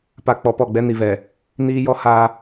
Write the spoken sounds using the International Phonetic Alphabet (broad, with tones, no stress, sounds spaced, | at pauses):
p a˨ k͡p ɔ˨ p ɔ˦˨ ɡ͡b ɛ˦ n i˨ v ɛ˨ | n iː˦ j ɔ˦ h a˦